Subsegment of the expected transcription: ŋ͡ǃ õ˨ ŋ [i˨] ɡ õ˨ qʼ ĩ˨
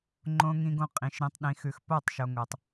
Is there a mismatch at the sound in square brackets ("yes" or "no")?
yes